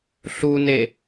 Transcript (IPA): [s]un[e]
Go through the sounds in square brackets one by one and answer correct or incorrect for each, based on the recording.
incorrect, correct

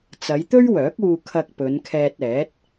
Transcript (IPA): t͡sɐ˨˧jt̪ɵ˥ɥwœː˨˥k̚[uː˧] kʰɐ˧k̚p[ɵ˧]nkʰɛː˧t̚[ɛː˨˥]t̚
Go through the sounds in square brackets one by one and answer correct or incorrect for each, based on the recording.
correct, incorrect, correct

